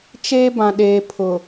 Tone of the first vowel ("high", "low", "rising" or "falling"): high